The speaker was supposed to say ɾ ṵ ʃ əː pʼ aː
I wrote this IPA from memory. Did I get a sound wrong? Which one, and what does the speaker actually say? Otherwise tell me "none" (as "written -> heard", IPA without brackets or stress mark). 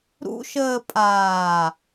none